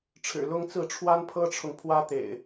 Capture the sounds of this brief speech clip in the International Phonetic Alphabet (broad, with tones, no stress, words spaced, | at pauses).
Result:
ʈ͡ʂʰɻ̩˨˩lʊ˦ŋt͡sɹ̩˥˨ ʈ͡ʂʰwa˦n pʰɤ˦ʈ͡ʂʰʊ˨ŋpʰwä˦ t̪ḛ˨˩ɪ̯